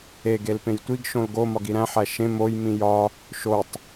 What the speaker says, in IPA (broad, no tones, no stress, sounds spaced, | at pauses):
e ɡ e l p ẽ j tʷ i ɡ ʃ õ l ɡ o m ɒ ɡ i ɾ æ̃ ħ æ ʃ ẽ m o j m ĩ j ɒ | ʃ o tˤ